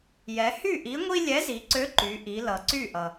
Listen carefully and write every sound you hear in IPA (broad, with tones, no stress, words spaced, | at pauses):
jɛ˩˧hy˥˩ʔi˨˥ŋʷi˦ lʲɛ˨˥zi˩˧ǀø˨˥ ǃy˩˧ʔi˩˧lʌ˩ ǀy˥˩ʔʌ˩